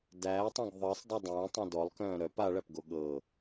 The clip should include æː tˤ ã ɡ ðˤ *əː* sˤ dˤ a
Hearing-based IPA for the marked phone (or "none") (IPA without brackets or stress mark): əː